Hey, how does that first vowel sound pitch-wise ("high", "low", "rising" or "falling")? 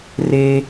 high